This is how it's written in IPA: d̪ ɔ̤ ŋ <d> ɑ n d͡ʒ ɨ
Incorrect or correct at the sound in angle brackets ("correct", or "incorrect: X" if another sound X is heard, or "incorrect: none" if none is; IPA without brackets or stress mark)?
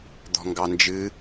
incorrect: ɡ